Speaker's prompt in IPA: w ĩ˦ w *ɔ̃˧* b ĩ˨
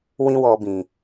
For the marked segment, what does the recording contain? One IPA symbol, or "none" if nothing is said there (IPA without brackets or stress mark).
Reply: ɔ˧